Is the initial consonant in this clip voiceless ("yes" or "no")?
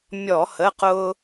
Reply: no